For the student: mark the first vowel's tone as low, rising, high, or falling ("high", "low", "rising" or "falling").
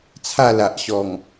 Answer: falling